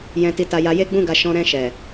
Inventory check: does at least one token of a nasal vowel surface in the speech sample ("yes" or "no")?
yes